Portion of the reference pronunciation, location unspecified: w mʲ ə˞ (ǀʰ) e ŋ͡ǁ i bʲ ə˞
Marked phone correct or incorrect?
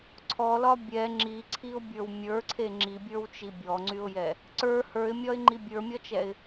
correct